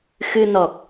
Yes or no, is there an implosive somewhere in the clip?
no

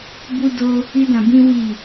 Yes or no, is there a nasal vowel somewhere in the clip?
yes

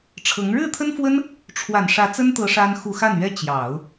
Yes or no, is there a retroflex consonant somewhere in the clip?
yes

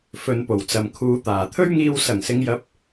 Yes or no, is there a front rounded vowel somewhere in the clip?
no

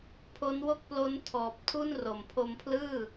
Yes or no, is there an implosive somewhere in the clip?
no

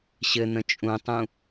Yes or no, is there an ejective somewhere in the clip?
yes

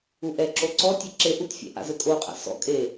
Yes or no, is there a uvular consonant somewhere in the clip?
yes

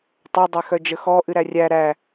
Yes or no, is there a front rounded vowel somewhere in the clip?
yes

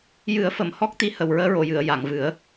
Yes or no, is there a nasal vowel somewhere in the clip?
no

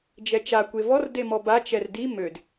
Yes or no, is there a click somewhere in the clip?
no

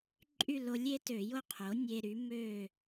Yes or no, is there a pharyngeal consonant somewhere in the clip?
no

